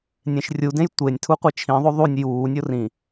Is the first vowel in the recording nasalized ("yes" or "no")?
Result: yes